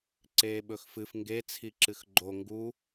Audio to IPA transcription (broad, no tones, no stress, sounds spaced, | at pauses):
ǀ eː ɓ ɵ x f ɨ f ŋ ɡ e t͡sʰ i ǁ ɨ x ɡ͡ǃ o ŋ ɡ u